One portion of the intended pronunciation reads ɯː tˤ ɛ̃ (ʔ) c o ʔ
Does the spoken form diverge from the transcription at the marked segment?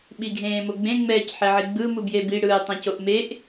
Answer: yes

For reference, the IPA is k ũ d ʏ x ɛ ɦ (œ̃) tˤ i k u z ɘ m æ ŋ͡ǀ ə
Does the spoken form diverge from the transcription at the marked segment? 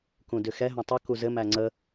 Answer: no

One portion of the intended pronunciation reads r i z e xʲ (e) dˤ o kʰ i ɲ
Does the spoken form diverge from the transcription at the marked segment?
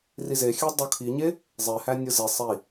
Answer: yes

